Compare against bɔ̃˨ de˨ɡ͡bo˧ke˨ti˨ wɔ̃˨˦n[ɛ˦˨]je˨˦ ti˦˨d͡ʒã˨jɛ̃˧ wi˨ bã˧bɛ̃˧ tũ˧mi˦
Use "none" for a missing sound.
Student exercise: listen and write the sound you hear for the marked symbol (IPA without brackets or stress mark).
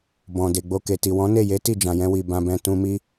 e˦˨